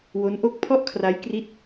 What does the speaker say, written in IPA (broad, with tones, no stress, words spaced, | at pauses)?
wo˦˥nʔo˥˩k̚ pʰɔ˥˩ʔkʰra˦˥j kri˥˩t̚